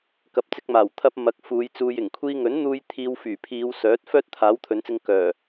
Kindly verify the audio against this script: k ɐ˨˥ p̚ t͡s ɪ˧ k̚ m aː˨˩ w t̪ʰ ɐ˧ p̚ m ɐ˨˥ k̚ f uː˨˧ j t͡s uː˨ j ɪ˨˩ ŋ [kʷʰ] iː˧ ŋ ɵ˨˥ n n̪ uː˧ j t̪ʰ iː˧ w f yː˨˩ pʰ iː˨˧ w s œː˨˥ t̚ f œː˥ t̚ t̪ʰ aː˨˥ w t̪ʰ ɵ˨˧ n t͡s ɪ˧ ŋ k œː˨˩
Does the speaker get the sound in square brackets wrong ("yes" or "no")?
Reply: no